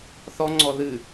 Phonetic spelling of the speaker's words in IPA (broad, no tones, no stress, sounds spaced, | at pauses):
θ ɔ ŋ͡ǀ ɔ ð ɨ